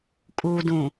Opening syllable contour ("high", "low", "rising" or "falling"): low